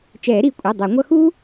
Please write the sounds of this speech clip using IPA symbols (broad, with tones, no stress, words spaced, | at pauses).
t͡ʃɛː˨˩˦ɾi˩˧˩kʷʼɛ˩˧˩ dˤɛ˨˩˦ŋʷʌ˥ xu˥